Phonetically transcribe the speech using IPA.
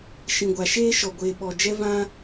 ʃĩ˧ɡʷa˧ ʃeː˦ʃɔ˧ ɡʷeː˧ɓɔ˧d͡ʒɛ˦vã˦

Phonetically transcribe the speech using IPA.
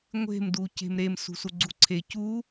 ŋʷe̤m duce̤mɾem sṳsuɡ͡ǀuǀʰe cu

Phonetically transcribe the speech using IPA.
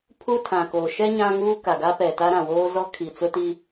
pʰu˦ tʰã˨koː˨ ʃɛ˦ ɲã˦ŋuː˦ ka˨ɡa˦pɛ˨ta˦ ɾã˨woː˦ zɔ˦ kʰi˨t͡sʊ˦ti˦

